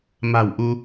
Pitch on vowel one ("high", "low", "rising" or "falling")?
low